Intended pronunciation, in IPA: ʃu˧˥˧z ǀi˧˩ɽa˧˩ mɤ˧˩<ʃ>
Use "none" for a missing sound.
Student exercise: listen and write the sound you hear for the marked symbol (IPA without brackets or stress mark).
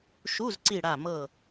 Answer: none